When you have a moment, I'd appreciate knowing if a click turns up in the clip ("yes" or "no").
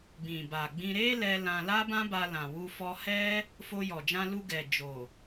no